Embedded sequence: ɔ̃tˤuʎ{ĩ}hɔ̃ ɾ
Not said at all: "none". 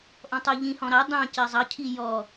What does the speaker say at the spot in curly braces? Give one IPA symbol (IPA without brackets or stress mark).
ĩ